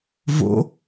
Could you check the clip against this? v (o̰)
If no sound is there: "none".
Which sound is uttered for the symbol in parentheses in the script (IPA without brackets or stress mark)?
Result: o̰